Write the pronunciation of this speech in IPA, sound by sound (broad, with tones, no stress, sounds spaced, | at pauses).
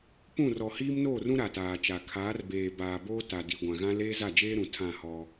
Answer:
p ũ˦˨ r ɔ˨ h iː˦ m n oː˦˨ r ũ˦ ɾ a˨ t aː˨ t͡ʃ a˨ kʰ aː˨˦ r b eː˨ b aː˨ b oː˦ t a˨ d i˨ ɡʷ ã˨ ɣ ã˦ l eː˦ z a˦˨ d͡ʒ eː˦ ɾ ũ˨ tʰ ã˦˨ h ɔ˦